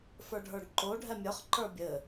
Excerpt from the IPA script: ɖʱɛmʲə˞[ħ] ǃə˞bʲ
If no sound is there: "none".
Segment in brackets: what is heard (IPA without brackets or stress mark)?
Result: χ